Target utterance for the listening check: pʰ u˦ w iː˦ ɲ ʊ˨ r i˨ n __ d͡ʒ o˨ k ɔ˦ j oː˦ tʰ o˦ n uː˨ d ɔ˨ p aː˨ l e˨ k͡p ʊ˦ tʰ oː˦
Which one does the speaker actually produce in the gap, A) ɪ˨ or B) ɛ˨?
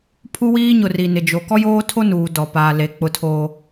A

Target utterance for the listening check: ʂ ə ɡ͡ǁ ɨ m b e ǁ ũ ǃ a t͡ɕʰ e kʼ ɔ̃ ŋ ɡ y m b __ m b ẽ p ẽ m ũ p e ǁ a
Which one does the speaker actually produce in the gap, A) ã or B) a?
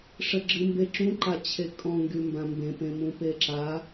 A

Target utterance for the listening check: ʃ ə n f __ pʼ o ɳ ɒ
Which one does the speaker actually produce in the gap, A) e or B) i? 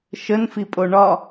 B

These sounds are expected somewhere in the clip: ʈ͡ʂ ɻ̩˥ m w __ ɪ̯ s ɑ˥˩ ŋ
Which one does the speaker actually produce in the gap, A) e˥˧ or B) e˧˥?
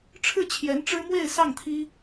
A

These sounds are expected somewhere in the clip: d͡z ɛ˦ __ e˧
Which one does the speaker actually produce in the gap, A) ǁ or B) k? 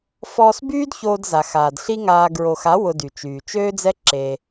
A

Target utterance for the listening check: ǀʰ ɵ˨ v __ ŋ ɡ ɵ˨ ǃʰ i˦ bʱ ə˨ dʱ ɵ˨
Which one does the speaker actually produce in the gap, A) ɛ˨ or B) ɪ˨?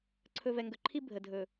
A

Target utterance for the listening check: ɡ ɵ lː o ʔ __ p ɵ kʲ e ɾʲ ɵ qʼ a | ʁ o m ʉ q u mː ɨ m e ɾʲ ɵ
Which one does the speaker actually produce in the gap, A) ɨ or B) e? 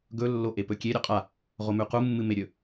B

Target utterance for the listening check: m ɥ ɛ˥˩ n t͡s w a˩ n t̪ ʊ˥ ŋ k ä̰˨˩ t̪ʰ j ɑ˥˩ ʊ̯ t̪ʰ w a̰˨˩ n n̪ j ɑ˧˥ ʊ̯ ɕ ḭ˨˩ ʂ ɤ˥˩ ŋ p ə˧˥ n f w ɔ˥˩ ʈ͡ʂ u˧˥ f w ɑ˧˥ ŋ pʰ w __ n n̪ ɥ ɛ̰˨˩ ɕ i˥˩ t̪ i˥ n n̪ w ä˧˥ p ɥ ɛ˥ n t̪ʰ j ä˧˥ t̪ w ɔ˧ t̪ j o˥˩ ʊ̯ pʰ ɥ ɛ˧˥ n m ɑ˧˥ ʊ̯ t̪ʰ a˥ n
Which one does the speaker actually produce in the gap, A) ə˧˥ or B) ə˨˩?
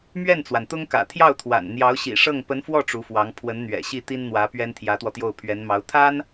A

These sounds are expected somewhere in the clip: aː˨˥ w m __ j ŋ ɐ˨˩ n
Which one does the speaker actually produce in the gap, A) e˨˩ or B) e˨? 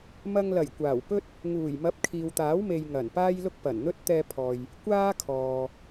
B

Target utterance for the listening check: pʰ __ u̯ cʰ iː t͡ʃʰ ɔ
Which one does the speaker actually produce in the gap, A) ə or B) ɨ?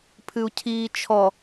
B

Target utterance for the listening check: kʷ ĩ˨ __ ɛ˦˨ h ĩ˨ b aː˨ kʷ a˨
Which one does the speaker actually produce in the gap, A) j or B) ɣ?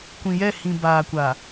A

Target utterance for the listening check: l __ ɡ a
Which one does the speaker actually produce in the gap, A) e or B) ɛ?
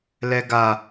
B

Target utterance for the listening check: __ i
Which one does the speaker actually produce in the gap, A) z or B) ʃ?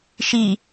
B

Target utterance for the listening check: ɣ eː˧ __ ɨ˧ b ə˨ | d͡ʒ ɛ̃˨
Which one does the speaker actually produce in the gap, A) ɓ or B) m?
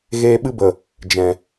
A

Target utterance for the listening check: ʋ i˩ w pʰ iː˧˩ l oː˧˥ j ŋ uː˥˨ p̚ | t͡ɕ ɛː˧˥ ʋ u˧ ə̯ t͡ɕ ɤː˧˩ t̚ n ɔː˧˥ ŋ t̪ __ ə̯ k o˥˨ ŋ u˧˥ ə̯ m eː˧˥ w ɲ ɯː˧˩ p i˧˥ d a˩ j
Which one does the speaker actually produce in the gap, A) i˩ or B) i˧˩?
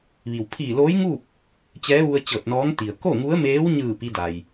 A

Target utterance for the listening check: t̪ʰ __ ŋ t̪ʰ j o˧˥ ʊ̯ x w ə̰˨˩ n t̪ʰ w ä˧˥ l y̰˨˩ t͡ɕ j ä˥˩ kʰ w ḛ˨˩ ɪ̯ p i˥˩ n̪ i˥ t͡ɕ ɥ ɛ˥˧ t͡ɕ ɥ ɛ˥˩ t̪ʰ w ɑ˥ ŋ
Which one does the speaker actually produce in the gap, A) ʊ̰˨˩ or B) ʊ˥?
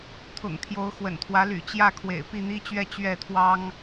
A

